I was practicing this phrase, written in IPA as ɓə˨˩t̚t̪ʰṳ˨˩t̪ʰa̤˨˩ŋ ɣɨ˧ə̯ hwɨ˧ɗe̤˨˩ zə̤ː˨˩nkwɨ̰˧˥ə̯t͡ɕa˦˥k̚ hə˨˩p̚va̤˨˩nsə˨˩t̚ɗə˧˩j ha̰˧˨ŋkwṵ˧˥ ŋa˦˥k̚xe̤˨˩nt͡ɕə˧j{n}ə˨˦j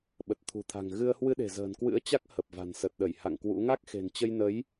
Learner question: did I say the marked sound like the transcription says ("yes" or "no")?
yes